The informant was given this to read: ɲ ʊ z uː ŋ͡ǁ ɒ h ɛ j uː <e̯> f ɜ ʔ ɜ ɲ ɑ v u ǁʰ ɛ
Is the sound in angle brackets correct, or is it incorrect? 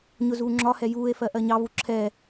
correct